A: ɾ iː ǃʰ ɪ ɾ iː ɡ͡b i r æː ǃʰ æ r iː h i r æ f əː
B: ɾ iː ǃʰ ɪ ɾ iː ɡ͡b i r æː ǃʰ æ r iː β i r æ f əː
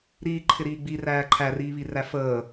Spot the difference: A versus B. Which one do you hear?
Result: B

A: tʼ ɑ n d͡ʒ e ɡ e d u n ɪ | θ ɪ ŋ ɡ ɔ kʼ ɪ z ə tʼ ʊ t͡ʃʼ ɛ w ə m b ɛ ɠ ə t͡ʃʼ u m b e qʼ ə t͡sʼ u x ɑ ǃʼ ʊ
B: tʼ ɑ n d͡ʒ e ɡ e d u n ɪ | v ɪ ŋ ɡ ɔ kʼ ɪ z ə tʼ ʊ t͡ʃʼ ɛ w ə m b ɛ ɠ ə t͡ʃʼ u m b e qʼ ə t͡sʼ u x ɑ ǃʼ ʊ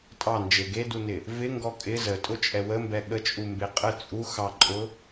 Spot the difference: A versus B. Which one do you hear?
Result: B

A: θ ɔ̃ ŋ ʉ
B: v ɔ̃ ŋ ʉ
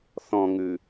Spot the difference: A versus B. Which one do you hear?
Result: A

